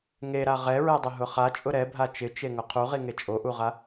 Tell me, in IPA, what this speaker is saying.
ŋ e ɾ a ʁ ɛ ɹ ɛ dˤ ʊ ɦ ʊ χ a t͡ʃʼ ʊ ɾ ɛ bʱ a t͡ʃ ɪ t͡ʃ e ŋ ʊ qʰ u ʁ i ŋ e t͡ʃʼ o ʔ u ʁ a

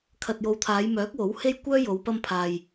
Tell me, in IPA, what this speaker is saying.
kʰ ɐ˨ t̚ j o˨˧ w t̪ʰ aː˨˧ j m œː˨˥ k̚ w o˨˥ w h e˥ j kʷ œː˥ j o˨˧ w p ɐ˧ m pʰ aː˨ j

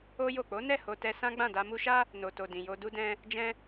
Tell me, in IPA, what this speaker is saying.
o˦ j o˦˨ k͡p o˨˦ n ɛ˦˨ h o˧ t ɛ˧ s ã˦ ɡ͡b ã˦˨ d a˧ m u˧ ʃ a˦ | n o˨ t o˨ d ĩ˨ j o˧ d u˦ d ɛ̃˦ | d͡ʒ ɛ̃˧

